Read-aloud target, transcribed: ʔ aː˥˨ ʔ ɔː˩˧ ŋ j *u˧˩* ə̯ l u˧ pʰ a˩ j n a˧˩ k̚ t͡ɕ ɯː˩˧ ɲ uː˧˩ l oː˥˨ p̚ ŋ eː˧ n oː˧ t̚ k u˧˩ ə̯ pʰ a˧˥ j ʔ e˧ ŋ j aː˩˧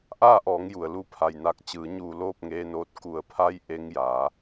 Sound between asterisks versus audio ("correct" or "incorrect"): incorrect